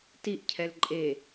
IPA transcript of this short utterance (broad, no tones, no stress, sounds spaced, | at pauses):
t i ʔ cʰ ɛ l ǃʼ e